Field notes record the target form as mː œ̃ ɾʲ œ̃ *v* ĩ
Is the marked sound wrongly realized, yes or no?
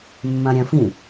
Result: yes